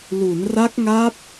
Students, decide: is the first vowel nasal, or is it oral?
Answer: oral